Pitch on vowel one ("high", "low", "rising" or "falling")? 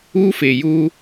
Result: high